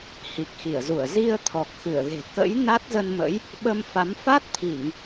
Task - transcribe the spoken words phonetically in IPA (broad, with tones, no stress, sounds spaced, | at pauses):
h i˨˩ k̚ x i˧˩ ə̯ z u˧˩ ə̯ z i˧ ə̯ t̪ʰ ɔ˨˩ k̚ x ɨ˧˩ ə̯ ɣ e̤˨˩ k ə̰˧˥ j n a˦˥ t̚ z ə˧ n m ə̰˧˥ j | ɓ ə˧ m f a˨˦ m f a˦˥ t̚ t̪ʰ i˧˩˨ ŋ